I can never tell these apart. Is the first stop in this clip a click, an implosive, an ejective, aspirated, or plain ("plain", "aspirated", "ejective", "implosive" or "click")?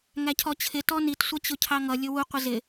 aspirated